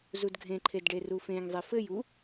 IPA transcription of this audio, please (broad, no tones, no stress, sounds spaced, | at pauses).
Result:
z u d ɡʱ ẽ ǃʰ e d ɖ e r u f ẽ ŋ zˤ e f ɘ j u